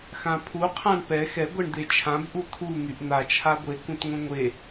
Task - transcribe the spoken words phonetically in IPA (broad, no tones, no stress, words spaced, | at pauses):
xãpʰu qʰãɳpɛ xɛ ɡʷɛɳd̪et͡ʃʰãb ʔut̪ʰu n̪yʔn̪a t͡ʃʰaɡʷe kũtŋʷẽŋʷe